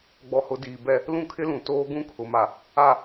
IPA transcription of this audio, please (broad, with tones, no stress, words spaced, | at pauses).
ɡ͡bɔ˨hʊ˨ diː˨bɛ˦ | lũ˦˨kʰɪ˦lũ˨ toː˦ɡũ˦kʰʊ˨ma˨ | a˨